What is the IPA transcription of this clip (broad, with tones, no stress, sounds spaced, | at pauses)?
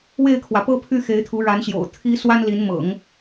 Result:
w e˥˩ ɪ̯ kʰ w ä˩ p ɤ˥ pʰ y˥˩ x e˧˥ ɪ̯ t̪ʰ u˧˥ ɻ a˧˥ n ɕ j o̰˨˩ ʊ̯ t̪ʰ i˥ s w a˥ n l i˧˥ n m ɤ̰˨˩˦ ŋ